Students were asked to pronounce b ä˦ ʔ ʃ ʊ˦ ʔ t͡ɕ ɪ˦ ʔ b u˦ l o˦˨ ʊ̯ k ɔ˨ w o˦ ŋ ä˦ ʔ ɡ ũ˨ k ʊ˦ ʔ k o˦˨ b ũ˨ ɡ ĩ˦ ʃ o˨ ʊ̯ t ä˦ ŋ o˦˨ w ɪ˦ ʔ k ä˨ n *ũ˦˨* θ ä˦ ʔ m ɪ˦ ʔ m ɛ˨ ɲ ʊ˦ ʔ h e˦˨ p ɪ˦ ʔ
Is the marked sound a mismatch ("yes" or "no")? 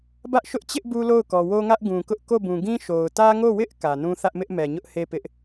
yes